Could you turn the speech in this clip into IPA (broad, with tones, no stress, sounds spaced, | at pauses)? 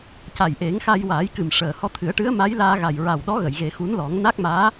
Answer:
c a˨˩ j ʔ e˨˩˦ ŋ x a˧ j w aː˨˩˦ j k ɨ˨˩ m ʂ əː˨˩ h ɔ˧˥ t̪ʰ ɨ˨˩˦ ə̯ ʈ ɨ˧˥ ə̯ m a˧˥ j l aː˧ ɣ a˨˩ j ɹ a˨˩ w ɗ ɔ˧˥ ɣ ə˨˩˨ j ɣ e˨˩˦ x u˧˥ n l ɔ˨˩˦ ŋ n a˦˥ k̚ m aː˧˥